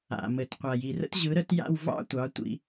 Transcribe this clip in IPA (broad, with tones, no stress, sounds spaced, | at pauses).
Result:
a̰˨ m ɘ˨ t qʷ a˨ j i˨ r ə̰˦ t ʑ ɯ˨˦ ɾ ə˧ t j a̰˦˨ w v ɑ̰˦ tʷ ɑ˨˦ tʷ ḭ˧